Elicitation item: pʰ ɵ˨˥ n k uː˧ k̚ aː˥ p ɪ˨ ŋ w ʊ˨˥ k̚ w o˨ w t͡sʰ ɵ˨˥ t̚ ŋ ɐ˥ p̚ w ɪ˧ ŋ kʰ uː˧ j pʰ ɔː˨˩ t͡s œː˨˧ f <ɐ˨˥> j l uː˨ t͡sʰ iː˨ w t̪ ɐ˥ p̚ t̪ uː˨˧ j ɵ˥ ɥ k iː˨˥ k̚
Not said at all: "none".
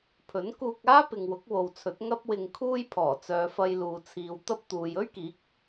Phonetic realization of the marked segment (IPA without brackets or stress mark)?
ɐ˧